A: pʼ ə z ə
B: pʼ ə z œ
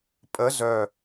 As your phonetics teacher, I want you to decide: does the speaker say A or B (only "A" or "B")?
B